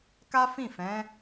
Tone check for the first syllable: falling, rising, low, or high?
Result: high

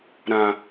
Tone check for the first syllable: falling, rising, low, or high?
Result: low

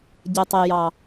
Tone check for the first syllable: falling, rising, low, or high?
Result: low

